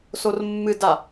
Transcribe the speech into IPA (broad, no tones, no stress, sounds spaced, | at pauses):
s o r mː ɨ d a